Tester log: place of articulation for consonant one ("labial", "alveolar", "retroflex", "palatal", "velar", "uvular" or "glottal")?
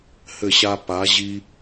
glottal